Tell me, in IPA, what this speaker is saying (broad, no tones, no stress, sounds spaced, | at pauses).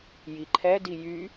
j i ǃʰ ɛ d i j y